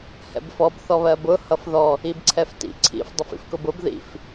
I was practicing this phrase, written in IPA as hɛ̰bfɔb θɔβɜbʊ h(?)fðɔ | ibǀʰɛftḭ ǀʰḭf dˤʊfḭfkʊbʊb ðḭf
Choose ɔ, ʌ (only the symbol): ʌ